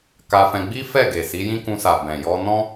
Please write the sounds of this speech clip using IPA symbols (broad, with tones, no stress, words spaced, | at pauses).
ka˧fɛ̃˧ɡ͡bi˦ fɛ˦˨ ɡe˨si˨˦jĩ˦ kũ˧sa˨ bɛ̃˨jɔ˧nɔ̃˦